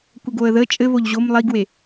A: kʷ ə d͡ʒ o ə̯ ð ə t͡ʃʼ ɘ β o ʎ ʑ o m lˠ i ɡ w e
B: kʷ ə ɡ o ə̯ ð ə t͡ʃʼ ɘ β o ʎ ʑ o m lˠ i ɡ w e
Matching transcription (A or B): B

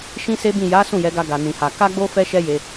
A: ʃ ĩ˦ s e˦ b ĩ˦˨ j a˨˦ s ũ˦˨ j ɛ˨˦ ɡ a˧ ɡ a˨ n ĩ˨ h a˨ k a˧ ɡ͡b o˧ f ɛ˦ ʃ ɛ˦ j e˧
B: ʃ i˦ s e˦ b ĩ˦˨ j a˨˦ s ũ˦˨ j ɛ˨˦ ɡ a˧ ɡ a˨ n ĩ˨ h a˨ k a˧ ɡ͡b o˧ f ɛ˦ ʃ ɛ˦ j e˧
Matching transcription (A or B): A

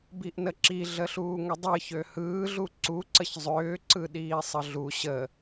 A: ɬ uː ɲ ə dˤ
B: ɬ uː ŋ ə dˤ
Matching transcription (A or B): B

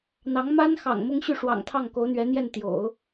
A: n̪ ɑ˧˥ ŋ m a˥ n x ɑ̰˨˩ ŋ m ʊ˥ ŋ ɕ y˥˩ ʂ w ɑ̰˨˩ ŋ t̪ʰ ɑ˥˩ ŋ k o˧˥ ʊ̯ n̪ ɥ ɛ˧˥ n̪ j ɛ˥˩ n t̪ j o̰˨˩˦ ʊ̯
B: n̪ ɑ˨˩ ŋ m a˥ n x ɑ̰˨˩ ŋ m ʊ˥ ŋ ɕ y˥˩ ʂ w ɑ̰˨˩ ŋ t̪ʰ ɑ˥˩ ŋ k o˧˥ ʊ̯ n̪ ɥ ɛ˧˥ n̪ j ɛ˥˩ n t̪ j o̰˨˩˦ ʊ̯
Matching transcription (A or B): A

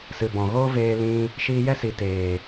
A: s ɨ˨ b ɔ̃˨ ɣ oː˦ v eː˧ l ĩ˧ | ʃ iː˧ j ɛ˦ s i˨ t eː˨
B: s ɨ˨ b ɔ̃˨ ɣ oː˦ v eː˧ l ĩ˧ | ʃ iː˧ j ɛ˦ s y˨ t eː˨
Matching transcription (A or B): A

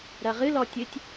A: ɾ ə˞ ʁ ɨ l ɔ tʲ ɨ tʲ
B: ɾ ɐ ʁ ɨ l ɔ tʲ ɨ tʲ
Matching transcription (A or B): B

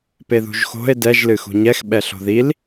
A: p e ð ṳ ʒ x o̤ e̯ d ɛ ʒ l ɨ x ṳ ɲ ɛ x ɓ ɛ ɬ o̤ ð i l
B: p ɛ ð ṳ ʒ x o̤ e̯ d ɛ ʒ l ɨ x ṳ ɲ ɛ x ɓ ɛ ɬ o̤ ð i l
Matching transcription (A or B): A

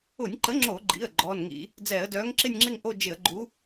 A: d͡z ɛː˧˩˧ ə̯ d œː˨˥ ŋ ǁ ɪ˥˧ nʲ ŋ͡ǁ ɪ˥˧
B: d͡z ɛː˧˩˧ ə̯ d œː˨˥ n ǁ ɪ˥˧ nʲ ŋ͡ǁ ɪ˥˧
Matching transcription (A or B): A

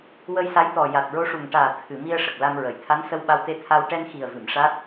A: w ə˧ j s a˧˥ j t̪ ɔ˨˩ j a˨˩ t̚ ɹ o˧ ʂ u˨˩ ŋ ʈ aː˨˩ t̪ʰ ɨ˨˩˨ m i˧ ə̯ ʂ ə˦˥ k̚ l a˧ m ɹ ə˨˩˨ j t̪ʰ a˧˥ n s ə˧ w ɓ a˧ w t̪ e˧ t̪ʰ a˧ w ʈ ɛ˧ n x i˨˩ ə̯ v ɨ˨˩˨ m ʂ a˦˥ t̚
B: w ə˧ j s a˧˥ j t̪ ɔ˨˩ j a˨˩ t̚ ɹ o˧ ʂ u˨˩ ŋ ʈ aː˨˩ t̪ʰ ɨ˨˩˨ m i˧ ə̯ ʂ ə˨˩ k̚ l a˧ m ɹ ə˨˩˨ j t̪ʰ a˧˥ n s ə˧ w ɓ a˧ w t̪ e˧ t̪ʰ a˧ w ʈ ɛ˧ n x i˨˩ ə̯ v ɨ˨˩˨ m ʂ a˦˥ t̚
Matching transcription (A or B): B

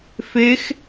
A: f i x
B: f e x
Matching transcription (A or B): B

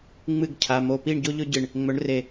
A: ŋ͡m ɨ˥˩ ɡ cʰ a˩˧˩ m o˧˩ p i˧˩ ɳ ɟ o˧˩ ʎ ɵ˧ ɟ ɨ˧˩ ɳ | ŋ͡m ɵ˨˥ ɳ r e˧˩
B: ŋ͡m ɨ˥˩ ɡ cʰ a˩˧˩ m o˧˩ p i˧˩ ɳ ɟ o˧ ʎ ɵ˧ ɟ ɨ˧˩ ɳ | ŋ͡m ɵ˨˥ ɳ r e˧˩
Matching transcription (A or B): B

